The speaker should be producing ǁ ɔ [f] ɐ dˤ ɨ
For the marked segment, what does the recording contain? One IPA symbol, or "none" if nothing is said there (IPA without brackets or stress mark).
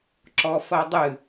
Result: f